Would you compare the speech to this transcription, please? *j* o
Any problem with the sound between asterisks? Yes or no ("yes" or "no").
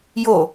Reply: no